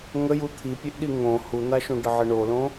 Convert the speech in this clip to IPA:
ŋ ə j u t̪ʰ i pʲ e ʔ ɗ i ŋ õ h u n̪ a ʃ ũ ɖ ə ʕ ɪ ɳ o l õ

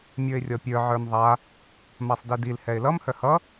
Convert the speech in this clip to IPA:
mʲ ə˞ ɪ̯ rʲ ɔ pʲ ə˞ ʕ ə˞ m ðˤ a | m a sˤ d i d i l h ɛ ɪ̯ l ʌ m h œ h ʌ

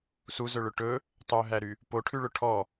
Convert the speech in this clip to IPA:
s u z ɵ ɭ ɵ ʈ ɵ | tˤ ø ɦ æ ɾ y | p o ʈʰ ʉ ɭ ɵ ʈʰ ɔ

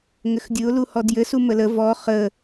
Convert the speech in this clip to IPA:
ŋ ɘ x dʲ ɯ ʊ̯ l u h ɔ d j ɘ s u m ə l ə v ɔ χ ə

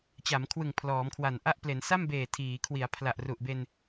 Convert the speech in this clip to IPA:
t͡ɕ a˩˦ m kʰ w ɯ˨˩ ŋ pʰ l ɔː˩˦ m kʰ w a˨˩ n ʔ a˥˩ ʔ p l e˩˦ n s a˥˩ m b eː˨˩ tʰ iː˩˦ kʰ w i˩˦ a̯ pʰ l a˨˩ ʔ r u˨˩ ʔ b e˧ n

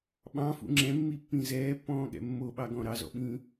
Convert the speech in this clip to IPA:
ɓ ɑ̃ f ṵ ŋ͡ǁ ɛ̃ mː i pː ĩ z ɛː pː ɔ̃ː ɠ ɛ̰ mː o ɓ ɑ ɡ ɔ̃ ɾ ɑ z ɔ̰ ɓ ĩː

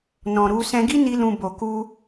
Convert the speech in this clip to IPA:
n ɔ̃˨ ɾ u˧ s ɛ̃˧ ɡ i˦ n i˧ l ũ˨ b o˨ k u˧

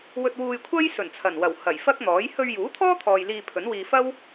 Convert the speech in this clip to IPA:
w ɵ˧ t̚ w uː˧ j kʷʰ ɐ˥ j s ɵ˨˩ n t͡sʰ ɐ˨˩ n w ɐ˨˩ w h ɐ˨˩ j f ɐ˥ k̚ n̪ ɔː˨˥ j h ɵ˧ ɥ j uː˨˥ t̪ʰ ɔː˥ t̪ʰ ɔː˨ j l iː˧ pʰ ɵ˨˥ n w iː˧ f ɐ˥ w

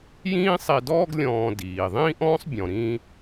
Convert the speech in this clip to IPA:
j ĩː˥ sˤ i˧ d ɔː˥ ɡ lʲ ɔ̃ː˧ d iː˩ ðˤ ĩː˥ ʔ ɔ̃ː˥ sˤ bʲ ɔ̃˩ ɾ ĩː˧

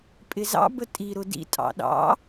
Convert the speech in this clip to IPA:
pʼ ɪ z ɑ̰ b ə tʼ i ɾ ʊ d ḭ tʼ ɑ̰ ɗ ɑ̰

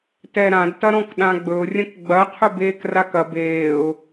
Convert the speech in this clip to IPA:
t ɛ ɾ ã d t ɐ ɾ ɔ̃ k ɗ ã ɡ͡b ɵ ʊ̯ rʲ ɐ̃ k ɡ͡b ɐ qʰ ɵ b eː k r a k ɐ b eː ʊ̯

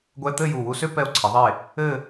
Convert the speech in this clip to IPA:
ɡʷ ɛ˧ t̪ ɘ˥˧ j u˧˩ w u˧ s ø˥ p ɛ˧ o̯ ǀʰ e˩˧ ðˤ e˧˩ | ɘ˥˧

